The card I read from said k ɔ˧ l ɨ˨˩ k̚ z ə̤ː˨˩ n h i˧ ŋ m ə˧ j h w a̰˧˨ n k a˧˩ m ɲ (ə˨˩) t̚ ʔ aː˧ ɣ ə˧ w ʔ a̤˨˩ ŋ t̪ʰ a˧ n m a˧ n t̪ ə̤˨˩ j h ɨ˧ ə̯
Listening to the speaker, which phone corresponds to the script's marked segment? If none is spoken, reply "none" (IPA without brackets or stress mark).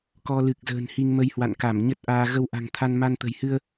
ə˦˥